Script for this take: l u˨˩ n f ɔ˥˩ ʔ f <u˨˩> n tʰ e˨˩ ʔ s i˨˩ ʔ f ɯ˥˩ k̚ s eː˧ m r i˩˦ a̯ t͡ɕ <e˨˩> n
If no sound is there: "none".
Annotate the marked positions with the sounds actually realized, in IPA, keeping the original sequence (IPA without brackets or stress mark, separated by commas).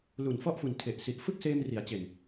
u˨˩, e˨˩